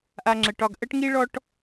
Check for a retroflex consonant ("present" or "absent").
present